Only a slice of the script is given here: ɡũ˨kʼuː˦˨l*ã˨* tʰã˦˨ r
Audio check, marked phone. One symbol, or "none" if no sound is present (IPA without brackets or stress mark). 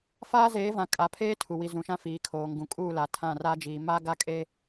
a˨